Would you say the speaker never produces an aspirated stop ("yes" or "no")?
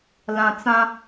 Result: yes